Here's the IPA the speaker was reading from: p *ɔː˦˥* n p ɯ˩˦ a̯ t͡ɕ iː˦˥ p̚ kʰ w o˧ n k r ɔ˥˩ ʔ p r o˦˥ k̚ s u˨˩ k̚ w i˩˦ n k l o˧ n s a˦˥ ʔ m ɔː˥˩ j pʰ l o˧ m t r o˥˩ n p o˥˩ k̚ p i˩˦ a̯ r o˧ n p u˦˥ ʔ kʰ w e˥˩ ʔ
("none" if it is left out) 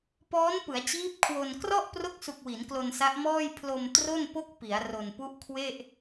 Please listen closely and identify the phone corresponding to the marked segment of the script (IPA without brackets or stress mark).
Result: ɔː˦˥